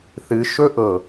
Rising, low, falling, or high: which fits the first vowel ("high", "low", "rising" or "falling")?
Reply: low